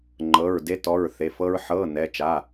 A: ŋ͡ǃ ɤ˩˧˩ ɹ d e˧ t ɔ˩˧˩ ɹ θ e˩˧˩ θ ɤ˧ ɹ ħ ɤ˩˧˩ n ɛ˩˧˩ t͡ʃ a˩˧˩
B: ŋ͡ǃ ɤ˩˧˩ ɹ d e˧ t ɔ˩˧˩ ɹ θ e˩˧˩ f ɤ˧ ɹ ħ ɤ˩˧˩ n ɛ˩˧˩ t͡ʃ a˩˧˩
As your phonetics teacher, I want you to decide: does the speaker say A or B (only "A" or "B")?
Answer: B